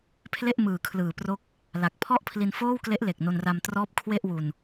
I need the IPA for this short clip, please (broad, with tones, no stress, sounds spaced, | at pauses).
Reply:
pʰ l e˥˩ ʔ m ɯː˨˩ kʰ l ɯː˨˩ p r o˦˥ k̚ | l a˨˩ k̚ pʰ ɔ˥˩ ʔ pʰ l i˧ n f oː˥˩ w k l e˦˥ ʔ l e˨˩ k̚ n o˧ n r a˧ m t r ɔː˦˥ p̚ kʰ w e˥˩ ʔ w u˧ n